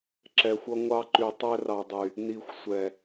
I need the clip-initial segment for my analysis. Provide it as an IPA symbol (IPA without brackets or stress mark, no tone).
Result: ǁ